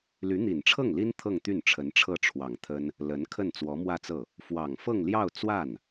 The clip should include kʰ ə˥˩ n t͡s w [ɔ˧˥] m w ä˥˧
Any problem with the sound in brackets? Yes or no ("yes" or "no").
no